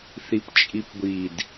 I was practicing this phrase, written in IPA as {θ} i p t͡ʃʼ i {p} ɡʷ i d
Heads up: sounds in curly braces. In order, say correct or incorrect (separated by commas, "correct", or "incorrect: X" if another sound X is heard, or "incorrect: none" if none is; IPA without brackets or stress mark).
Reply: correct, correct